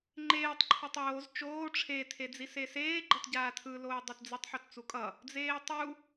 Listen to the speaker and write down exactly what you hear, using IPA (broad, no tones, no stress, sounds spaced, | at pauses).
ŋ͡ǃ eː tˤ ǃʰ u tˤ oː z t͡ʃ oː ʈ͡ʂʰ e tʰ e d͡z i s e s eː ɡ͡ǃ ʌ t ɟ aː tʰ ɯ l oː dˤ ɛ t d͡z ɯ tˤ ħ o t t͡s u kʼ ʌ | d͡z eː tˤ u